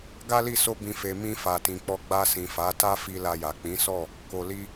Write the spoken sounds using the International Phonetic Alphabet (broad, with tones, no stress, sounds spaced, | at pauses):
ɡ a˦ l i˦˨ s o˧ b ĩ˨ f e˨ m ĩ˧ f a˨ t ĩ˨ k͡p ɔ˧ ɡ͡b a˧ s ĩ˨ f a˨˦ t a˦ f i˧ l a˧ j a˨ k͡p ĩ˨˦ s ɔ˦˨ | k o˨ l i˧